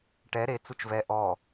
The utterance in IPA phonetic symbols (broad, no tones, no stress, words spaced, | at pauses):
ʈɛ ɾe t͡sut͡ʃvɛ ʔɔ